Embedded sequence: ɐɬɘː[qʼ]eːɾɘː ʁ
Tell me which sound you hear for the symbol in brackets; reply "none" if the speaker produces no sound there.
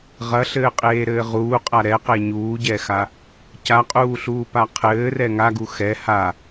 qʼ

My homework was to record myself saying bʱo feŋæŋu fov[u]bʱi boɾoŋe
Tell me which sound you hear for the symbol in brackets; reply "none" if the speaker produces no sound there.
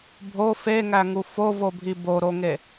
o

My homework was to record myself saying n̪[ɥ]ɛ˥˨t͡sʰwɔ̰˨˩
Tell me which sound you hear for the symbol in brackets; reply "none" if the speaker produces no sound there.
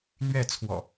ɥ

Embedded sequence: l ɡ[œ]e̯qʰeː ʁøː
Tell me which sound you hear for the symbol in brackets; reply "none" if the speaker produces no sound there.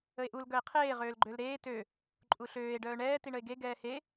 œ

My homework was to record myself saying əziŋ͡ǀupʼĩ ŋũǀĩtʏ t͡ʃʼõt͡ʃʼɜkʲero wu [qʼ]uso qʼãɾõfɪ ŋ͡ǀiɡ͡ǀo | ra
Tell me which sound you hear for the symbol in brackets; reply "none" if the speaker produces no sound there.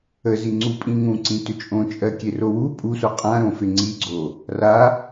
pʼ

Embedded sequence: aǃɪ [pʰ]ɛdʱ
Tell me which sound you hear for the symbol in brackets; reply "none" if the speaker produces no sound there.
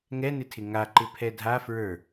pʰ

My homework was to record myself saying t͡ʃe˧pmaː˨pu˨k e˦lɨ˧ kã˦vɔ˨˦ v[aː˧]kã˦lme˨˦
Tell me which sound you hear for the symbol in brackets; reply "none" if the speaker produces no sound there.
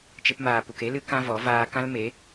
aː˧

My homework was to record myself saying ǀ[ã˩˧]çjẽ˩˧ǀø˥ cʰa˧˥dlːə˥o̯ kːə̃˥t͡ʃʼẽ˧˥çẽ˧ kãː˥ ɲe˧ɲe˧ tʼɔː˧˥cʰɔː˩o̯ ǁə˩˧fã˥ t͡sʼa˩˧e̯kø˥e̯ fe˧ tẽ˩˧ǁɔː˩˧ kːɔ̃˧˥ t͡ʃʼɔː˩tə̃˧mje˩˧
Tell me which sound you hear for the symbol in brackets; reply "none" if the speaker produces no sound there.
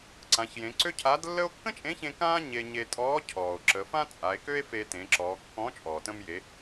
ã˩˧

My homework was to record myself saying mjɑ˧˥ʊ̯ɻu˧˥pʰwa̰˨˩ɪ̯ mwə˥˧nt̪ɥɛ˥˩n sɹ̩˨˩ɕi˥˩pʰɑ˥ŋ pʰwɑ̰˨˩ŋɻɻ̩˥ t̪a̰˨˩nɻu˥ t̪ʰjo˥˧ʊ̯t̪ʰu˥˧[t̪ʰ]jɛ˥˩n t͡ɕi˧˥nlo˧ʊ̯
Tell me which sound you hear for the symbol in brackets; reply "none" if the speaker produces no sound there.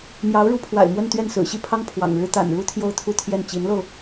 t̪ʰ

